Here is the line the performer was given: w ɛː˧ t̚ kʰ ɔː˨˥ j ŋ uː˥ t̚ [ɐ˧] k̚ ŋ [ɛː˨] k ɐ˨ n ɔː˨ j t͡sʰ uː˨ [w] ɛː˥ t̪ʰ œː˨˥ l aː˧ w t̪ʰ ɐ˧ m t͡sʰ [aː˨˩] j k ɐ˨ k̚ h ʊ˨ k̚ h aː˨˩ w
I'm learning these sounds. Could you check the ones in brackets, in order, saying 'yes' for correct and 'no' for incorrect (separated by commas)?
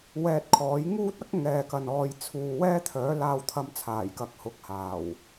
no, yes, yes, yes